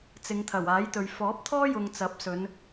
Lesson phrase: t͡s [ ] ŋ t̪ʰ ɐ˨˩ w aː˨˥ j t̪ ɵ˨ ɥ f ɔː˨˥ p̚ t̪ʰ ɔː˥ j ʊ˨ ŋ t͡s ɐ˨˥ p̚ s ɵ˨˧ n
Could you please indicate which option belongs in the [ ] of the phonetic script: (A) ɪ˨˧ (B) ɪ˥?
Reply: A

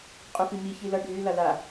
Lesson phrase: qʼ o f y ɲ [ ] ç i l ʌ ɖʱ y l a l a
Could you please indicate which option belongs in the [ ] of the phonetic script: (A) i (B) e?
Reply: A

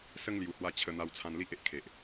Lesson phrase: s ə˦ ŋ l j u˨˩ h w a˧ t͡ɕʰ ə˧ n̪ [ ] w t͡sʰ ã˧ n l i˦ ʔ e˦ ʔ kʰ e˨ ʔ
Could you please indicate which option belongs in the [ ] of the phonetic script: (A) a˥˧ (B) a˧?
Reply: B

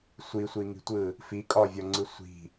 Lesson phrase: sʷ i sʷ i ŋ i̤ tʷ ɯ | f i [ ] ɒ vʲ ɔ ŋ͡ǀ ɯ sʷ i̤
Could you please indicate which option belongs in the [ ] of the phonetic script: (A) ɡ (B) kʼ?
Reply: B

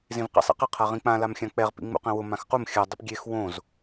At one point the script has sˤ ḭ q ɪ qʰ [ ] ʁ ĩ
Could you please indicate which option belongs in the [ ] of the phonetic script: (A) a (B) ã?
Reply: A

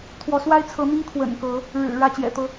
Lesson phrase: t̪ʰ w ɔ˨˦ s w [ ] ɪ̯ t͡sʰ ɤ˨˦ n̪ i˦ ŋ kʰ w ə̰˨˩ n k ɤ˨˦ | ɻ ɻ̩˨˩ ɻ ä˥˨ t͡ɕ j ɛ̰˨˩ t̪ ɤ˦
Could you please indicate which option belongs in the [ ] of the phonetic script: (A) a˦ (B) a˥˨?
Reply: A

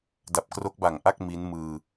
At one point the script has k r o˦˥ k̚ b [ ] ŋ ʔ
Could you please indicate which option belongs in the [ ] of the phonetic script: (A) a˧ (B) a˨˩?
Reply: B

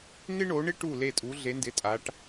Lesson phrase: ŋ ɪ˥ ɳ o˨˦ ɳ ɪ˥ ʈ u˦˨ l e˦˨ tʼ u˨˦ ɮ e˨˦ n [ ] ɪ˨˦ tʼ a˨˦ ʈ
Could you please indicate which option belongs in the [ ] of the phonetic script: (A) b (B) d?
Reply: B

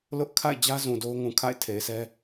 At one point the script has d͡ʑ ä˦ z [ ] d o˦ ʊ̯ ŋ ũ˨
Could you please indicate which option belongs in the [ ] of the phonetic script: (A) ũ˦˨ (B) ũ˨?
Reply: B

